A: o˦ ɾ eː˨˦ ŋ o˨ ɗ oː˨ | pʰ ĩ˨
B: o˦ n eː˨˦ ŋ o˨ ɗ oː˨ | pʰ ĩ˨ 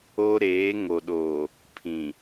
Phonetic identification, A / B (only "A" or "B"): A